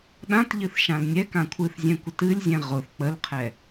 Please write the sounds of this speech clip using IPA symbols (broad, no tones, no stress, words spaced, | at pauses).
ɗãtʎɨθ ʃãlnʲɛkã kʷʰɨθzʲɛ̃ kʷətɨlʲzʲɛ̃ ʁʊθ k͡pəlqʰɛ